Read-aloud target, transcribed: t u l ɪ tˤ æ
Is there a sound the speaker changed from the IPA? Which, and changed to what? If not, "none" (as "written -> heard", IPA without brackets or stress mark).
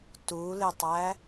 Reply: none